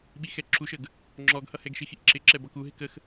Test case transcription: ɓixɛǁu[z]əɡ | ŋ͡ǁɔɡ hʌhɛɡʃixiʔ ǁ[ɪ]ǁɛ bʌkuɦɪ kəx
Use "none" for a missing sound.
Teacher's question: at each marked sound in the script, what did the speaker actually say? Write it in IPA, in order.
ʃ, ɪ

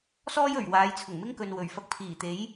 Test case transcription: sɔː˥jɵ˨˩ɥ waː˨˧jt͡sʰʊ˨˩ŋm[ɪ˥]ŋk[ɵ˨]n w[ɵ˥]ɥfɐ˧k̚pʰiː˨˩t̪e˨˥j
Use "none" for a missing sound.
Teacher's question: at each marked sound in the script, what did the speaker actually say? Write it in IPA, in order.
ɪ˥, ɵ˨, ɵ˨˩

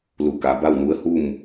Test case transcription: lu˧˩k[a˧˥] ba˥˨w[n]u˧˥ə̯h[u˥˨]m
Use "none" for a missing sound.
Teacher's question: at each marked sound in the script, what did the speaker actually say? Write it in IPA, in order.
a˩˧, n, u˥˨

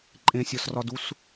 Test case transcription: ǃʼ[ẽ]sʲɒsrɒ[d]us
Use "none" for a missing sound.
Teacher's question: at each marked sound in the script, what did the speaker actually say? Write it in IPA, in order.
ẽ, d

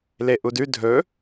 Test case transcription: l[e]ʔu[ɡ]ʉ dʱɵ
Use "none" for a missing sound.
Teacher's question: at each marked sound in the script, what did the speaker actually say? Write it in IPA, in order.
e, d

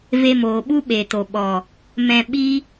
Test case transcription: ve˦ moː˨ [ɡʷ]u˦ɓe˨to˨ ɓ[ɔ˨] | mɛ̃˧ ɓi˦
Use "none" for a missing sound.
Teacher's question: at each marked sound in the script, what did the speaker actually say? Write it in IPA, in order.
ɓ, ɔ˨

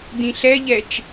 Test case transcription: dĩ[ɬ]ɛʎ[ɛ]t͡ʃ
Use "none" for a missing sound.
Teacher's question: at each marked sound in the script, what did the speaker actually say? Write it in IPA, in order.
ɬ, ɛ

